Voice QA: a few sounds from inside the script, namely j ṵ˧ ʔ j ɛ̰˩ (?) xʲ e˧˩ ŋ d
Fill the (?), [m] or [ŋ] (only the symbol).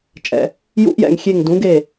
ŋ